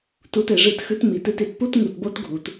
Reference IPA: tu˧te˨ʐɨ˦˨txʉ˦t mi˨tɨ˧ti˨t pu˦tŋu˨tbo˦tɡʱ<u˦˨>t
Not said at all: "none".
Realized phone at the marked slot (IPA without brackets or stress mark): u˨